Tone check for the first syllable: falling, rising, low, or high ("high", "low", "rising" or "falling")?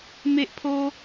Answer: high